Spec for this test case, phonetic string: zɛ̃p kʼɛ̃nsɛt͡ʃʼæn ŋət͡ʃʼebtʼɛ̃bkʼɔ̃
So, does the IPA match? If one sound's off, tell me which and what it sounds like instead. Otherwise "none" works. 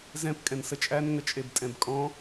ɛ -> ə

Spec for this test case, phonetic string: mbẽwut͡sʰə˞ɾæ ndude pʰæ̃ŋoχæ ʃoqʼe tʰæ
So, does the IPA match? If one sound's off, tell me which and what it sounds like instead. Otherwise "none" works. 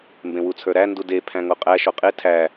χ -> qʼ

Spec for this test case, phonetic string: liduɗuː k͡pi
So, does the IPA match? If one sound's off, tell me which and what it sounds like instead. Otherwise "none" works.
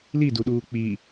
none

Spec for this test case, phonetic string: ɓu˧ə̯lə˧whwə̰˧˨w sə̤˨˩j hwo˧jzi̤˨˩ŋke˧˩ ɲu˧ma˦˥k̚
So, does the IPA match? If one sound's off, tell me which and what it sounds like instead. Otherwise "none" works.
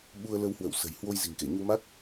none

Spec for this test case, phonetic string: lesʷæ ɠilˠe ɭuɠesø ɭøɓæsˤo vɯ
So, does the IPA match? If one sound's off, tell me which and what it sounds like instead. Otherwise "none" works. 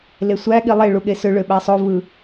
none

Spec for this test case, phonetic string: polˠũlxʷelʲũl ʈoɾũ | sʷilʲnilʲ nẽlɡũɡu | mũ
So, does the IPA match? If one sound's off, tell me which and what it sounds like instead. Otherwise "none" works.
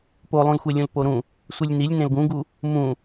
ʈ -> p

